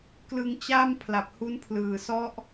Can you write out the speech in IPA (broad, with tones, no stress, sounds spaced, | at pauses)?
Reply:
k l ɯ˧ ŋ t͡ɕ a˥˩ m pʰ l a˨˩ p̚ h u˦˥ n pʰ l ɯː˨˩ s ɔ˦˥ ʔ